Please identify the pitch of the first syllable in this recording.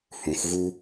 low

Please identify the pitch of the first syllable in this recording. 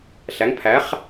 rising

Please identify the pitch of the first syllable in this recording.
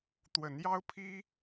rising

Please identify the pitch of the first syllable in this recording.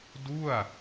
falling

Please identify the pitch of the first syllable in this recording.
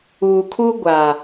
low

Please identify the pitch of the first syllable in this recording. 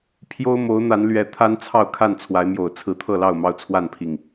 high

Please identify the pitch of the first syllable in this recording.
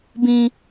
high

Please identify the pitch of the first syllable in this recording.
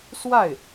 falling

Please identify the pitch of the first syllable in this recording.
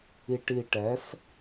low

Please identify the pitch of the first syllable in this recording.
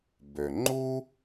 low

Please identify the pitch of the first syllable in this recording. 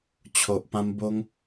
low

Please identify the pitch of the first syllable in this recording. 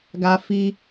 high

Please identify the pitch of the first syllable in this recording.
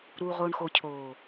low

